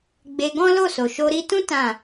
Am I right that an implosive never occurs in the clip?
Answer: yes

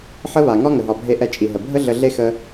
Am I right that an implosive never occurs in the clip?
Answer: yes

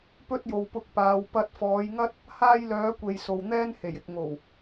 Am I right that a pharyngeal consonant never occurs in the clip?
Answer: yes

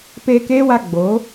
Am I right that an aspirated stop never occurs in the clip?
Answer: yes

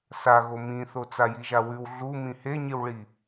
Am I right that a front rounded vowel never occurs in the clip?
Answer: yes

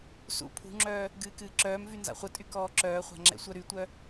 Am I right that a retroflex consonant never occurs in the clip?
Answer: yes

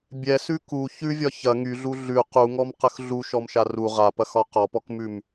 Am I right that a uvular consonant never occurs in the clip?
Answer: no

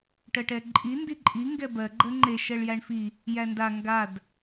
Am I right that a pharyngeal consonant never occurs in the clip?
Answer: yes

